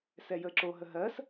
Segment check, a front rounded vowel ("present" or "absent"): absent